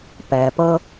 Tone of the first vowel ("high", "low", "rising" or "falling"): low